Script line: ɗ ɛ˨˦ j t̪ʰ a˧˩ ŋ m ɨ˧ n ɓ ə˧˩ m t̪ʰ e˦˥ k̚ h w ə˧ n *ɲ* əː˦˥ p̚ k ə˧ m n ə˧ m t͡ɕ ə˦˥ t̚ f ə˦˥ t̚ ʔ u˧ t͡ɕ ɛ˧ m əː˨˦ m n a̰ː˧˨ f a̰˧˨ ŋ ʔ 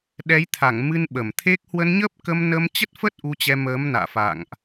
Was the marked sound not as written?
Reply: no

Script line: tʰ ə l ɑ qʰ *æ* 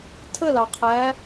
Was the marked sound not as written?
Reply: no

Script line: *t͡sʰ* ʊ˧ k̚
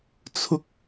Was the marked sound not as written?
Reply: no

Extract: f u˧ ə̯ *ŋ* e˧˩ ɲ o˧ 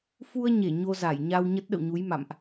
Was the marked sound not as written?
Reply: yes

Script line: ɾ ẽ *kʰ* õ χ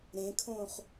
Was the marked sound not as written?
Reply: no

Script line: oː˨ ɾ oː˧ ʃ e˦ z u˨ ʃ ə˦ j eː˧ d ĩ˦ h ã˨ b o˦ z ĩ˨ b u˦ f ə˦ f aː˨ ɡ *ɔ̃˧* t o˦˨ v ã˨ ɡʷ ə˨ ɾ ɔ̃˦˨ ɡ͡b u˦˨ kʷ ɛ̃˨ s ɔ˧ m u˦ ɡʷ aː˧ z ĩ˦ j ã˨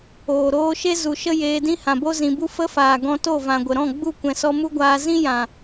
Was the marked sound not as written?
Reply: no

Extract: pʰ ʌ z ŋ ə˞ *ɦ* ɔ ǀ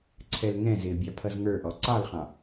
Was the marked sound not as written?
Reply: yes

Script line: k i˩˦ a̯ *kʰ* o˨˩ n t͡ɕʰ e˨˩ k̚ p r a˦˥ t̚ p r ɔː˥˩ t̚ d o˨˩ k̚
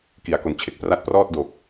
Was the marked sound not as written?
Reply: yes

